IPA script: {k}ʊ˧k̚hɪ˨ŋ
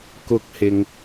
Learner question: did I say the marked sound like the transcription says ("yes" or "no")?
yes